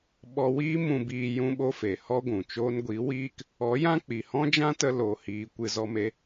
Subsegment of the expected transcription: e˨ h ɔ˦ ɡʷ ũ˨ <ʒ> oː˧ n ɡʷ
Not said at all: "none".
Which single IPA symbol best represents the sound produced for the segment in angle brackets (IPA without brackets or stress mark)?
t͡ʃ